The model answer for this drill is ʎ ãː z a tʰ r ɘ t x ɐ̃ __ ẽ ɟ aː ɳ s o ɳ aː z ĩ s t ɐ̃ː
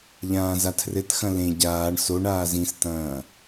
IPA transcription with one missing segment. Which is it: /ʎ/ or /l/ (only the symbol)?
l